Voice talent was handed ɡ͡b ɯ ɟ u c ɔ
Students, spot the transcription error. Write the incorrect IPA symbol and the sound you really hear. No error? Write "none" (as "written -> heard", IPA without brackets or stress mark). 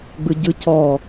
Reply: u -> ɯ